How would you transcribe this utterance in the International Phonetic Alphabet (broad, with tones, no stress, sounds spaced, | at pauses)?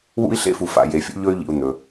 w ṵ˥ i̯ ɬ ḛ˥ f u˨ f a̰˨ j e˨ fʲ ṵ˥ ʎ ɵ˥ y̯ ʎ ḭ˨ u̯ n̪ ɵ˩